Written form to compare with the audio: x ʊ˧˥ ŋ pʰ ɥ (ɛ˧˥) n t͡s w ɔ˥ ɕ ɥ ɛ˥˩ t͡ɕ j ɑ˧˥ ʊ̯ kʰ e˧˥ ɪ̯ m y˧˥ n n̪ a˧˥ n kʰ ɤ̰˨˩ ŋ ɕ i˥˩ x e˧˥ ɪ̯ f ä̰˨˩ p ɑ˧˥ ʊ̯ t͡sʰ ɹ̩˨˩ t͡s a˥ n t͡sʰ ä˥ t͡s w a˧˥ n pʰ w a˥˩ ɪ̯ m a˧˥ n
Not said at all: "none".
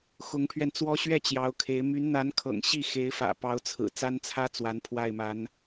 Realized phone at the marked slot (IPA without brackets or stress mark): ɛ˧